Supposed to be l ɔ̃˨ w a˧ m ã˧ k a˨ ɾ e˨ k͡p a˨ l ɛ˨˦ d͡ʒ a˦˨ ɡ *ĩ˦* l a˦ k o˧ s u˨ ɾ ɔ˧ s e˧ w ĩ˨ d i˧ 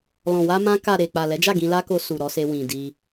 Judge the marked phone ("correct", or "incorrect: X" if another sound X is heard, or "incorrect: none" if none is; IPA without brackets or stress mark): incorrect: ĩ˧